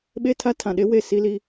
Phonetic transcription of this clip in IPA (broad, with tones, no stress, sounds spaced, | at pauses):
ɓ e˦ tʰ a˦ tʰ ã˨ ɗ e˦ w e˦˨ s i˦ l i˦